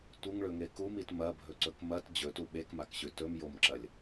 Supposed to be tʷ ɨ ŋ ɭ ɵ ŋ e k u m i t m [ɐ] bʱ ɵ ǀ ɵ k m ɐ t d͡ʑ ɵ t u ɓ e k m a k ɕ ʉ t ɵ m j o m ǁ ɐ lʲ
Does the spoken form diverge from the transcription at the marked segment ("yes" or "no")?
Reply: no